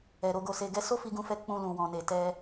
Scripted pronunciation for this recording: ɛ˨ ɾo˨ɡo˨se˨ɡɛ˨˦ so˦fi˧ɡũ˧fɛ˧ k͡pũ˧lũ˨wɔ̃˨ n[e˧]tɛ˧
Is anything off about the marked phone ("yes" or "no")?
yes